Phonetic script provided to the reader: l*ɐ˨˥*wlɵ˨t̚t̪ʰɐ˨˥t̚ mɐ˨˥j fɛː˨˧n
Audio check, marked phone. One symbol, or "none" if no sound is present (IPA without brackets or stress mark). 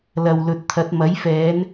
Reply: ɐ˨